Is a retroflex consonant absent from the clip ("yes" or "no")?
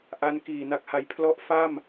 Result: yes